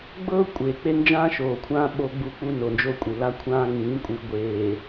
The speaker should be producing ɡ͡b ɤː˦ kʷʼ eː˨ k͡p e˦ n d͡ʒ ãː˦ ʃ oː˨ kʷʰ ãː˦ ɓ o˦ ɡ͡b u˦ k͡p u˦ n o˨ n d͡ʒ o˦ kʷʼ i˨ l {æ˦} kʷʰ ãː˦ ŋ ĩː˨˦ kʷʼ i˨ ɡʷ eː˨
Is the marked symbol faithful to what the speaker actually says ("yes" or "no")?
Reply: no